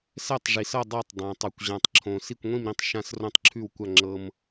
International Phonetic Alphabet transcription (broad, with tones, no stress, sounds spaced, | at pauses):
s ɛ˥˧ tˤ ʐ i˧ s ʌ˥˧ dˤ a˥˧ tˤ dˤ ã˧ tˤ ʉ˧ kʷ ʑ ã˧ tˤ ǁʰ õ˧ s i˥˧ kʷ ŋʷ ĩ˥˧ m ɾ ĩ˥˧ tˤ ʃ ã˥˧ s r õ˥˧ tˤ ǁʰ ʉ˥˧ w kʷ a˥˧ ŋ͡ǁ ɤ˧ m